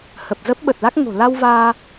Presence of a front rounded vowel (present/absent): absent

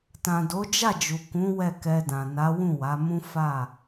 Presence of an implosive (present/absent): absent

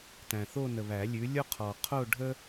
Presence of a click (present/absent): absent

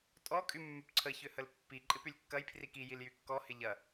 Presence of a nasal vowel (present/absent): absent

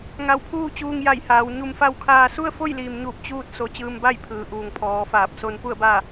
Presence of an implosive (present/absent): absent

